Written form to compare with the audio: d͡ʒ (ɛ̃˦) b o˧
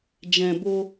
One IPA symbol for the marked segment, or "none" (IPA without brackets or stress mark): ɛ̃˨